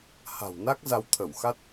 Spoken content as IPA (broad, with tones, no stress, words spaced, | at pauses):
ha̤˨˩wna˦˥k̚ za˧wt̪ʰə˧˩wxa˦˥t̚